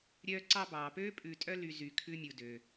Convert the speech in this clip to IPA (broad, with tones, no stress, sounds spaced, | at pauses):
ɾʲ œː˧ ǀ ɑ˧ b ɑː˨ p øː˦ pʼ ʉ˧ tʼ œ˦ l y˧ z y˧ kʰ ʉ˦ mʲ u˧ d ø˧